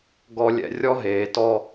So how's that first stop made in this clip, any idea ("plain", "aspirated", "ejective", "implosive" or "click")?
plain